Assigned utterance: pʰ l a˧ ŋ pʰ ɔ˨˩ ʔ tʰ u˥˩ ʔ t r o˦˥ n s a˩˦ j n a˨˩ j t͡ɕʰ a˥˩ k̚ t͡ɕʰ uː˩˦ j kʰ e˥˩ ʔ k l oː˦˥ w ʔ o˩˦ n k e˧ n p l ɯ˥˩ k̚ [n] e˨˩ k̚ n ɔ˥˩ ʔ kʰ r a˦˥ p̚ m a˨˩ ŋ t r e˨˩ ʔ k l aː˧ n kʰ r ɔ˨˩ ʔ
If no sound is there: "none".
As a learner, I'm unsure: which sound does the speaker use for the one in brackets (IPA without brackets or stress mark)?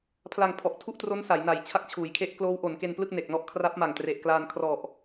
n